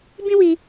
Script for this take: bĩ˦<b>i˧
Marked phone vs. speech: incorrect: w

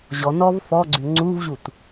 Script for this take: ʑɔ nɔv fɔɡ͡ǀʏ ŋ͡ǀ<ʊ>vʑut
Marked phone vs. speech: incorrect: u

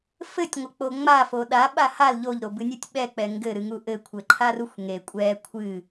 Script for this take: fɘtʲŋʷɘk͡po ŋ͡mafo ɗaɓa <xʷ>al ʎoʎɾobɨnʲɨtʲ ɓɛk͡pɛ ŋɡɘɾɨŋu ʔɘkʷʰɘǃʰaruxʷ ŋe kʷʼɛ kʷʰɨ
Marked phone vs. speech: incorrect: h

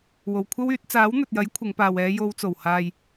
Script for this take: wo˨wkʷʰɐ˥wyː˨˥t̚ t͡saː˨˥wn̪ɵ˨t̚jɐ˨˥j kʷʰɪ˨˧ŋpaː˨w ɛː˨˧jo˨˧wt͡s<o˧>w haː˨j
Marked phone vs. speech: incorrect: o˨˩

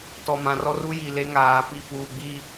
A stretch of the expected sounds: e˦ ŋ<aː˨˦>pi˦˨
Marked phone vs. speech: correct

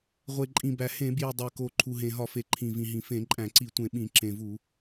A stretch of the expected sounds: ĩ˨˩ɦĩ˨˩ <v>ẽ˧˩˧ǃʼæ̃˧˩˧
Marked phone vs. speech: incorrect: f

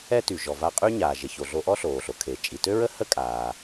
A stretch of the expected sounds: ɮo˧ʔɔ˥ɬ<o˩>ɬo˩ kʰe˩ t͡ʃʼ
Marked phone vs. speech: incorrect: oː˩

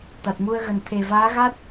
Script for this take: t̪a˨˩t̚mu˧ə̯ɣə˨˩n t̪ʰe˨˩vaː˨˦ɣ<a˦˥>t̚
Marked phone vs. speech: correct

